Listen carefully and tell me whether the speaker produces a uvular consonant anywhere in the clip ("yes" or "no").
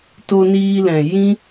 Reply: no